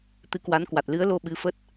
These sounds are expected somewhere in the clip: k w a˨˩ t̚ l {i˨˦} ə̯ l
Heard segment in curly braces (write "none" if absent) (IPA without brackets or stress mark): ɨ˨˦